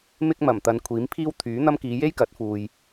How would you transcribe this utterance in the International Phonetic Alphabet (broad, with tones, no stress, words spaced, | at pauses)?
mɪ˥k̚mɐ˨˩mt̪ɐ˨˧nkʷʰiː˨˥m pʰiː˥wt̪ʰyː˨˥n̪ɐ˥m kiː˨˧je˥j kɐ˨˥t̚fuː˨j